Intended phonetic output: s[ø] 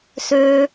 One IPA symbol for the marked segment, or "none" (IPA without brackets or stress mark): ø